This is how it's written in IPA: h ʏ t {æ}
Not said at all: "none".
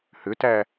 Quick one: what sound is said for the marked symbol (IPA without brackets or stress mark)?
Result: æ